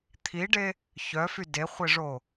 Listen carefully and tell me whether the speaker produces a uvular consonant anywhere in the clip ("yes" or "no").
yes